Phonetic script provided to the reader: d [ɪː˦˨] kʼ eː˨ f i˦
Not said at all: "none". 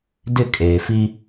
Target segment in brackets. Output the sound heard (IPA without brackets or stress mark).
ɪ˦˨